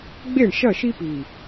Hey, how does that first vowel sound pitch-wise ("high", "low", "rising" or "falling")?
falling